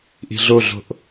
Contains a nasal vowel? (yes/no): no